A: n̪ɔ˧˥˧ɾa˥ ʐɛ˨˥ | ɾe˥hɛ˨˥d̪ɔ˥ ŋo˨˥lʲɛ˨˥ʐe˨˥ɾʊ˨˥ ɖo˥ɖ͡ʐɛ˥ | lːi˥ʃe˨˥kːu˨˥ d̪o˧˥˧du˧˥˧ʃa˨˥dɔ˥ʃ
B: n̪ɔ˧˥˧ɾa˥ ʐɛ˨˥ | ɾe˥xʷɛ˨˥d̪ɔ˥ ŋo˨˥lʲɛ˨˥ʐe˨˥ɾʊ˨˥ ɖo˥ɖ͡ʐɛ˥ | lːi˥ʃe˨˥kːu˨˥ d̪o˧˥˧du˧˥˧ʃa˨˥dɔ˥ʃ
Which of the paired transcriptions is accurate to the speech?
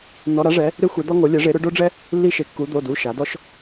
B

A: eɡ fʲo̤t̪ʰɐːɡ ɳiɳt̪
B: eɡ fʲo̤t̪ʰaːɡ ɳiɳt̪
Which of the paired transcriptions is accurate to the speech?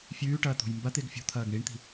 A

